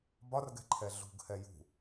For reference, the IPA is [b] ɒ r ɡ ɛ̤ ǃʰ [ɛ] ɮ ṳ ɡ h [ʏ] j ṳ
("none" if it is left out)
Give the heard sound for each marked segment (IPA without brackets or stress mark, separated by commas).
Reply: b, ɛ, ɛ